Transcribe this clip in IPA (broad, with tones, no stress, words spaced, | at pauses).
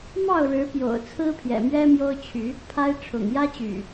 mɑ˥˨ʊ̯ɻɻ̩˨˦ pjo̰˨˩ʊ̯ t͡sʰɹ̩˦pʰjɛ̰˨˩mɥɛ˦ mjo˦ʊ̯t͡ɕʰy˨˦ | pʰa˦ɪ̯ ʈ͡ʂʰʊ̰˨˩ŋjä˦t͡ɕy̰˨˩